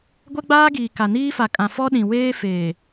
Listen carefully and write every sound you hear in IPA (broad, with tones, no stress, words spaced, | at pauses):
ɡʷɛ˦ɡ͡baː˦ɡiː˨ ka˨niː˦fa˨kʼã˨ fɔ˦ɗĩ˨weː˦ feː˨